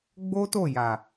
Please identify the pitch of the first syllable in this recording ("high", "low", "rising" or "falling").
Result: high